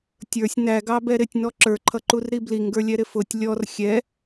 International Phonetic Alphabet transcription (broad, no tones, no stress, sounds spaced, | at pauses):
tʲ ə˞ sʲ n æ ɡ ɑ b ɛ ɾ ɪ tʲ n ɔ ǁ ə˞ ǃʰ ʌ ǃ u r ɾ i b l i ŋ ɡ ə˞ lʲ ɛ ɾ ɪ f ʊ tʲ lʲ ɔ r xʲ ɛ